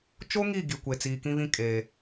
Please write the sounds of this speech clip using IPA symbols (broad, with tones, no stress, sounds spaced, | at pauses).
t͡ʃ o˦ ŋ i˦˨ ɡ i˨ kʷ e˨ t͡s iː˨ k ĩ˦ β ĩ˦ kʼ e˨